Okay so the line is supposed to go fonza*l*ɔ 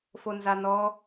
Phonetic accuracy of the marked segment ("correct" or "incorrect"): incorrect